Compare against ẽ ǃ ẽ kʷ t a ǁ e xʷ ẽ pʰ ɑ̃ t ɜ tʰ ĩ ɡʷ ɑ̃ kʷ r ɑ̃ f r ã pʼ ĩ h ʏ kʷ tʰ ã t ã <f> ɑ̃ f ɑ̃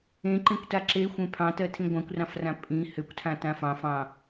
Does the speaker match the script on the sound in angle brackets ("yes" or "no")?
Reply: yes